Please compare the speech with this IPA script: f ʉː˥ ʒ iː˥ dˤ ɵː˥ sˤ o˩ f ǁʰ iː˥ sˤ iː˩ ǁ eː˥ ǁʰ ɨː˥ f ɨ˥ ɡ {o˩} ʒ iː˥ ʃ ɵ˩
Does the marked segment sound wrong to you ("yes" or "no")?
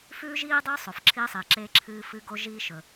yes